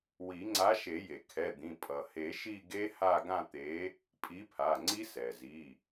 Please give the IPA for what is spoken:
wi˨˩˦ŋ͡ǀa˨˥ʃe˨˩˦je˩ kʰɛ˩˧˩d̪ĩ˩˧˩ pʼʌ˩he˨˩˦ ʃi˥˧ɡe˦˥ ha˥˧ɡã˥˧t̪e˨˥ | pʼi˨˥pʰa˩˧˩ŋ͡ǀi˦˥ sɛ˩zi˩˧˩

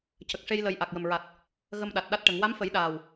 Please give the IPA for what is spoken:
cə˨˩k̚ʂe˧j lə˨˩j ʔa˨˩k̚jə˨˩mɹa˨˩t̚ | ɣə˧mɗa˨˩t̚ɗa˦˥t̚ʈə˨˩˦ŋ wa˧˥mfə˨˩˦jɗaː˨˩w

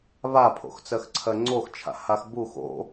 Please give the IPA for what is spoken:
βapʰo̰xt͡sɜxǀʰɜ ŋ͡ǀoxt͡ʃʰa̰ haxbux o̰

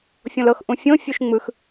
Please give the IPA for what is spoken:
fʲõlɤx ʔũfʲõ fʲuʃŋ͡mɯx

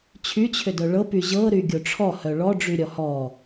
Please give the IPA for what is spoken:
t͡ɕʰyt͡ɕʰʏdœ ɭɤpy ʑɤɾyɡʲo ʈ͡ʂʰɔhœ ɭɔɖ͡ʐyɾʲɔ hɔ

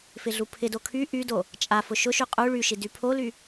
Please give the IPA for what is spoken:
fɪɮupʰɪdo kʰy ʔydo | t͡ʃʼafʊ ʃʊʃy qʼu ɭyʃi dypʰoly

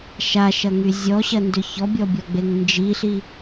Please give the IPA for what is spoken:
ʃaʃɐŋy zʲɔɕɐndʏ çɔbʲɔbʲɔɡ͡beŋ nd͡ʒiɬi

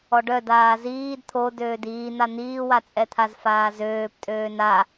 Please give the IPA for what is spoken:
ɔɖœd aːziːd t̪ʰo døːdiːn̪a n̪iːwat͡sʼɛt̪ʰaz faːzøːp tʼøːna

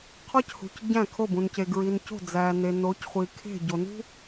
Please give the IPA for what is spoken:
qʰɒ˦chṳ˨c ɟæ̃˦˨kʰo˦˨bũ˨nce˨ ɡɹi˨nco̤˦˨d͡zæ˨ ne˨no˨˦cχʷi˨ kʰe̤˦˨ɟo˨ nṳ˦

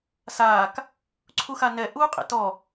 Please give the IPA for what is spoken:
saːk | ǀʰuxanɛ ʔuːqʼḛtɔ

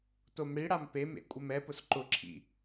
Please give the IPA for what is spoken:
tomɽiɽam pemḛ kʷʼɪmɛpʊs ǃʊǁʰḭ

